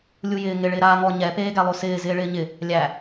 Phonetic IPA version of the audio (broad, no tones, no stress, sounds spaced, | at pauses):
lʲ u j ɪː ŋ ɪ ɭ ɪː ɾ aː ŋ ɔ ɲ ɛ p eː ɡ æ lˠ o s ɪː z ɪː ɭ ɪː ɲ ɪ | lʲ æ